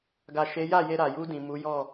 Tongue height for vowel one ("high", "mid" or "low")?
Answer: low